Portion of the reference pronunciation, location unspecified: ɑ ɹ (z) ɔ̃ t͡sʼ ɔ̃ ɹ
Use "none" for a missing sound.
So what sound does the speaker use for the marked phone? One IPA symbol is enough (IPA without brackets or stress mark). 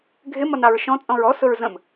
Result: ʃ